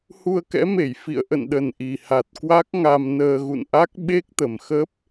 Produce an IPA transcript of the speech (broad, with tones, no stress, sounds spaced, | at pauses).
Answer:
h u˧ ə̯ k ɛ̰˧˥ m e˧˩ j f ḭ˧˨ ə̯ ʔ ə̰˧˨ n ɗ ə˨˩ n ʔ i˨˩ h a˨˩ t̚ k w a˦˥ k̚ ŋ a˧ m n əː˧ ɣ ṵ˧˨ n ʔ a˦˥ k̚ ɓ e˦˥ k̚ t̪ ə˨˩ m x ə˦˥ p̚